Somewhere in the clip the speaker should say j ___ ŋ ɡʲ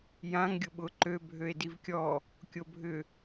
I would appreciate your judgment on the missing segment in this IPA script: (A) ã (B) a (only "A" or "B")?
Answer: A